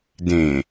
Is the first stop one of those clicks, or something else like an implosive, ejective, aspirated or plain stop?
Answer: plain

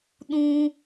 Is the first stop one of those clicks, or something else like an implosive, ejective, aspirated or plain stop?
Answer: implosive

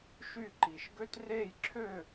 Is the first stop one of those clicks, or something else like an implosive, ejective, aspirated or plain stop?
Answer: click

